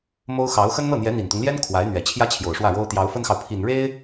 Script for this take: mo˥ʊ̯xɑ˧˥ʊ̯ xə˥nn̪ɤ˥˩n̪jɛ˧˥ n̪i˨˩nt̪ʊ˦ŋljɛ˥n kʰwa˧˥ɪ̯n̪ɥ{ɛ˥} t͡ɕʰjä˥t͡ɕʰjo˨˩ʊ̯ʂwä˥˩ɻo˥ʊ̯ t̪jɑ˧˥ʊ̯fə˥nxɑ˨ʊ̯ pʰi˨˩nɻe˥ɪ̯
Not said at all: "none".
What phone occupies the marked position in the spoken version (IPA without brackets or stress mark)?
ɛ˨˩